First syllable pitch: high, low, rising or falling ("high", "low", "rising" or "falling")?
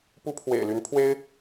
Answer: high